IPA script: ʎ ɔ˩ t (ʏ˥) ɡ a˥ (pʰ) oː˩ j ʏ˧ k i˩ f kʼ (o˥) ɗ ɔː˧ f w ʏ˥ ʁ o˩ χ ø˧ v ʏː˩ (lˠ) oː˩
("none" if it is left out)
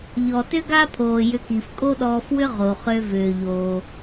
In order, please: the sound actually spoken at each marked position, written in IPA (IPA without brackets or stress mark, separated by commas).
ʏ˥, pʰ, o˥, ʎ